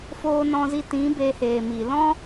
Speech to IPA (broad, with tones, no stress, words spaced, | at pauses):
foː˧nɔ̃˧zi˧tĩ˨˦ be˧heː˨ mi˨lɔ̃˦